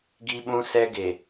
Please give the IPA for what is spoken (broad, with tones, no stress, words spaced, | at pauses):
ɡi˦ɓũ˦sɛ˦ ɡe˨